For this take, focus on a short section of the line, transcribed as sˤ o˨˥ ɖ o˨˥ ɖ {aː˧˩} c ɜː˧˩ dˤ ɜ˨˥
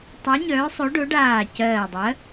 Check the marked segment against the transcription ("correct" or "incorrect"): correct